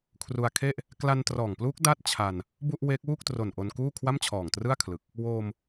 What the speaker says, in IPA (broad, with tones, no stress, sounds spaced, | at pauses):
kʰ r u˧ a̯ kʰ e˥˩ ʔ | k l a˧ n t r ɔː˨˩ ŋ p l uː˦˥ k̚ d a˥˩ t̚ t͡ɕʰ a˧ n | b u˥˩ ʔ w eː˦˥ k̚ w uː˥˩ k̚ t r o˨˩ n ʔ o˧ n k uː˥˩ kʰ w a˥˩ m t͡ɕʰ ɔː˨˩ ŋ t r ɯ˥˩ a̯ kʰ l ɯ˨˩ k̚ | w oː˧ m